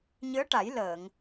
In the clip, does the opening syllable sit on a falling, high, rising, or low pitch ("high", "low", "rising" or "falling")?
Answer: rising